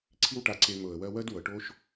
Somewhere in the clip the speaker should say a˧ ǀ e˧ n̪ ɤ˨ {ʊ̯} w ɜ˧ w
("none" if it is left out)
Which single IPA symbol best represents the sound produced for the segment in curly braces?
ə̯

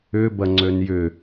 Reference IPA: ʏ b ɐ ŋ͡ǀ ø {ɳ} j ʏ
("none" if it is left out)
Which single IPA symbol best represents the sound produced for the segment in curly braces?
n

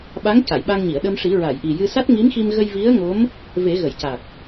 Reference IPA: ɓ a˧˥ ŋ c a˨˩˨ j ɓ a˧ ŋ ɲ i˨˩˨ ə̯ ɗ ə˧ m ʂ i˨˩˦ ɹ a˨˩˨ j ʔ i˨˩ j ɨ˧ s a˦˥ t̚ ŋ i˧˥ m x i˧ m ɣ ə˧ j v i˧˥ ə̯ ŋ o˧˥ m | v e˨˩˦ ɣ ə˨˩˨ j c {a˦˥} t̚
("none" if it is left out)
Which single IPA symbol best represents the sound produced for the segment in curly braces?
a˨˩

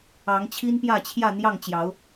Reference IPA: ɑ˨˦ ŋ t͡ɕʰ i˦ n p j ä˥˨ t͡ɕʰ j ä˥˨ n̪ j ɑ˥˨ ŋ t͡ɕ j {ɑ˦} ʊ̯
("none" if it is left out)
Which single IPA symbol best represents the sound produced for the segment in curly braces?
ɑ˨˦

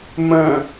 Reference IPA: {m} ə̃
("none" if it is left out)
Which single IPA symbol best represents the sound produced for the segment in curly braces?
m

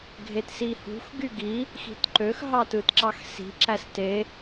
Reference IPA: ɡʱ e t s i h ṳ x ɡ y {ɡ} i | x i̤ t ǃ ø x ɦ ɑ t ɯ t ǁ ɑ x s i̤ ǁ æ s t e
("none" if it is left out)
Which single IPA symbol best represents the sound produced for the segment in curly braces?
ɡ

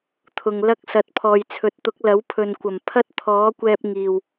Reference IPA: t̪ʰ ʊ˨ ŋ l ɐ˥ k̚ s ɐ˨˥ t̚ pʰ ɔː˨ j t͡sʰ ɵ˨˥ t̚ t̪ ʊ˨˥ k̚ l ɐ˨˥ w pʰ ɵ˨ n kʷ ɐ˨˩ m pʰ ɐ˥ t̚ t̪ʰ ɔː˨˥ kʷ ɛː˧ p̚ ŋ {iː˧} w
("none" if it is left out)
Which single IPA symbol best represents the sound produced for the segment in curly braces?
iː˨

